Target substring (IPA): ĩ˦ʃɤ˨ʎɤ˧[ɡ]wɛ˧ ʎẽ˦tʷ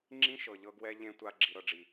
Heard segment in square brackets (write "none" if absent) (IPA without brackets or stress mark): ɡ